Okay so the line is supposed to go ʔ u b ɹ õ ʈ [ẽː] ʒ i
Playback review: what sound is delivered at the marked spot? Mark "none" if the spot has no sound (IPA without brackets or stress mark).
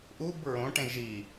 ẽ